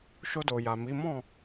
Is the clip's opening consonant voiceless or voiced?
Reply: voiceless